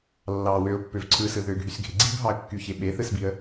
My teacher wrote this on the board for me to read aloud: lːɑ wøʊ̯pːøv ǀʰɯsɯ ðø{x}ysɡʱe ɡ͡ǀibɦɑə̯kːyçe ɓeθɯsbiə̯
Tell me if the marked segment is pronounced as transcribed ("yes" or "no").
no